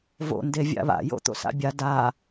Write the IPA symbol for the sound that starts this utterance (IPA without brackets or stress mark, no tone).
v